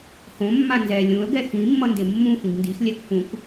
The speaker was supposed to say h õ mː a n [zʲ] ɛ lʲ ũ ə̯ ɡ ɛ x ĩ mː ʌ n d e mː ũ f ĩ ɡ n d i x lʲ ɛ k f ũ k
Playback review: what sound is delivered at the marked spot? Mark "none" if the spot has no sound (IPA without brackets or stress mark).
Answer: z